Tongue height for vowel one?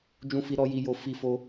high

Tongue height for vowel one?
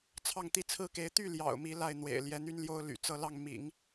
low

